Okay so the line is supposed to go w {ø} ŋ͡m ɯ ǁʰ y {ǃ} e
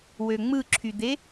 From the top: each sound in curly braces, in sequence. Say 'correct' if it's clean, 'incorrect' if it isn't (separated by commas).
correct, incorrect